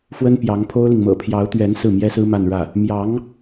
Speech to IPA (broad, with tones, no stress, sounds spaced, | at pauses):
f w ə˥ n p j ɑ˧˥ ŋ pʰ o˥ ʊ̯ l i˨ ŋ m ɤ̰˨˩ pʰ j ɑ˧˥ ʊ̯ t̪ ɥ ɛ˧˥ n s ɹ̩˥˩ m j ɛ˥ s ɹ̩˥ m a˥˧ n ɻ ä˥˩ | m j ɑ˧˥ ŋ